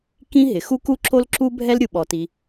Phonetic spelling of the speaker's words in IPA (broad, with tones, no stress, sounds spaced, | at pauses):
k ĩ˥ ɦ ɪ˩ x u˥ k u˥ ǁ o˥ l ǁ u˥ bʱ ɛ˥ l ɾʲ u˩ ɓ ɔ˩ t i˩